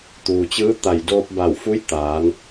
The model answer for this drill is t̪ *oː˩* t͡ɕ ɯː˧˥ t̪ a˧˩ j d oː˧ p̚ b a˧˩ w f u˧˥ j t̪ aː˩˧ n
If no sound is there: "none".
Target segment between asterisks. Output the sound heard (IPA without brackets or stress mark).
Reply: uː˩